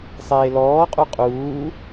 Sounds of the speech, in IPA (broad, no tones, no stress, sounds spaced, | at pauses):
sˤ eː l ɔː qʼ u qʼ uː